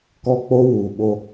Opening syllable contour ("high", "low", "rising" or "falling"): high